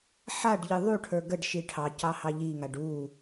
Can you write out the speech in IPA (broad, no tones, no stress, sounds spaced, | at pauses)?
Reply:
ħ a ɖ ʎ ɨ ðˤ u ʈʰ ə˞ ɡ ə ɖ ʃ i ʈʰ ɑ c ɑ h ɑ ʎ i ŋ a ɖ u